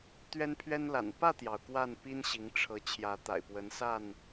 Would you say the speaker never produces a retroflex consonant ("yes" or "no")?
no